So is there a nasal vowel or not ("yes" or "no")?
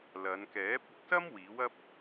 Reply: no